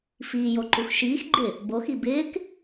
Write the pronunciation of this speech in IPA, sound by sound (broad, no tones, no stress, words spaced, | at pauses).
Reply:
fiːjoǃux ʃiːx ɡ͡ǃɪ | boxi bɪːk